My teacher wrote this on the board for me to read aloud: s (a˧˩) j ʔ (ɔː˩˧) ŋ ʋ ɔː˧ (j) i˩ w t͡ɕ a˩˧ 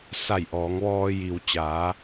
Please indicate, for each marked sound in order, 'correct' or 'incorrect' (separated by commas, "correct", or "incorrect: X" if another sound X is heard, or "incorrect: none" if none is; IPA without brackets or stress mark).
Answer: correct, correct, correct